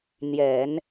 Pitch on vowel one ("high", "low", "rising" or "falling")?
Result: low